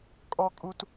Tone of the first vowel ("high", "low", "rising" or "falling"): high